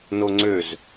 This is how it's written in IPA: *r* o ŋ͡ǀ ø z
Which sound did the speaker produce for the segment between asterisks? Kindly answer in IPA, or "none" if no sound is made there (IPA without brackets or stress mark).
n